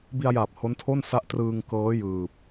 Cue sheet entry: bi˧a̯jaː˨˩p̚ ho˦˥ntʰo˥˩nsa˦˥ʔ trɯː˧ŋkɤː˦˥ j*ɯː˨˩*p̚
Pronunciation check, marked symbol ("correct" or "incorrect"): correct